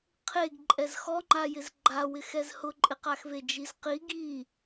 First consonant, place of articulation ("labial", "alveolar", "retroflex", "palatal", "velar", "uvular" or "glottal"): uvular